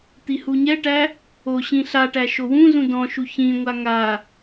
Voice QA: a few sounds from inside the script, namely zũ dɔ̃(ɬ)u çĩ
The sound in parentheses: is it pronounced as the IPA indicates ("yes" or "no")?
no